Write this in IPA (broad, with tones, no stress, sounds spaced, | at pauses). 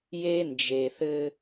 j e˦ n d͡ʒ e˨ θ ɘ˦